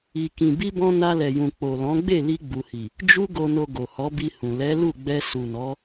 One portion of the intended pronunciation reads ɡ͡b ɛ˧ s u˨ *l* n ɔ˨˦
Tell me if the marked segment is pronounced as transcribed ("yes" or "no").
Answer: no